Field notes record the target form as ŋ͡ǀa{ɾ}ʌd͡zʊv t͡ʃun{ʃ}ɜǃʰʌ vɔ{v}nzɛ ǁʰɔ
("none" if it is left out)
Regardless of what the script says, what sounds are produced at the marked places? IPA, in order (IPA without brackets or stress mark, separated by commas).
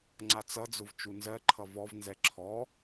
t͡s, z, v